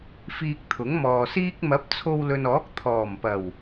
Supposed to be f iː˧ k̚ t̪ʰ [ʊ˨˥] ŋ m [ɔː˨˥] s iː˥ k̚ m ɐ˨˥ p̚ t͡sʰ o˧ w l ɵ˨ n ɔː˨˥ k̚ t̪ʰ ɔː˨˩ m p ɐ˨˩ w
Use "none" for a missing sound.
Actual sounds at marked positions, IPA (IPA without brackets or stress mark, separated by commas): ʊ˨˥, ɔː˨